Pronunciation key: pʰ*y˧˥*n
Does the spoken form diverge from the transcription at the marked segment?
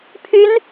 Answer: no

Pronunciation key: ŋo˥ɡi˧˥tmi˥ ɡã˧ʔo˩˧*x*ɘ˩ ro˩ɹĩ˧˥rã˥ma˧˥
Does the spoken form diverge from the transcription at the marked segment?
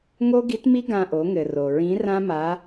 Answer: yes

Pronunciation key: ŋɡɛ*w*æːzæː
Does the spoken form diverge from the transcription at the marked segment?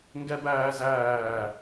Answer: yes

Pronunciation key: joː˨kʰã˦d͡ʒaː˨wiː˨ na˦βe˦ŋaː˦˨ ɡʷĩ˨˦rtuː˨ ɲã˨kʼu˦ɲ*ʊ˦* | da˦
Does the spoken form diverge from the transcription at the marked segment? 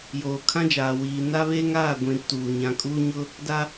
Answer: no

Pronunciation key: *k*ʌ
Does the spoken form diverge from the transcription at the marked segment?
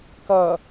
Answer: no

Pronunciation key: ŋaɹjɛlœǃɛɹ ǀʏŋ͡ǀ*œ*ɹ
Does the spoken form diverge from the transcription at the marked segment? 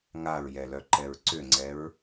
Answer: yes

